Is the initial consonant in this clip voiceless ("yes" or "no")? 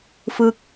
yes